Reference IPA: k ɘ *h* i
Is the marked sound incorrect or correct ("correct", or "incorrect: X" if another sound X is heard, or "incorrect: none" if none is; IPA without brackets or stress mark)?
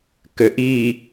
incorrect: ʔ